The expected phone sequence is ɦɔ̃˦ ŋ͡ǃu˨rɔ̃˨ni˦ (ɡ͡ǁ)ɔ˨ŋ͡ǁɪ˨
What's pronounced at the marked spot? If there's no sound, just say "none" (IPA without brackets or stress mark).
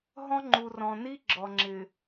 ɡ͡ǁ